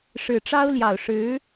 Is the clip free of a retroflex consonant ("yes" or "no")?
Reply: no